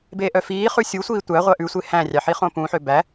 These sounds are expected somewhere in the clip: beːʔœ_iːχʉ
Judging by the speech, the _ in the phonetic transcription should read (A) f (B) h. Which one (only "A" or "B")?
A